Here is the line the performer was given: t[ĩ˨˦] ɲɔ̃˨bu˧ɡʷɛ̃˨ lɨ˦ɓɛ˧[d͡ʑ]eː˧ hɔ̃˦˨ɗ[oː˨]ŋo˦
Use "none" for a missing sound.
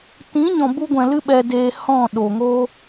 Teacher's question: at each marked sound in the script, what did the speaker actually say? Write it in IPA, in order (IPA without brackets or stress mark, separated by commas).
ĩ˨˦, d, o˨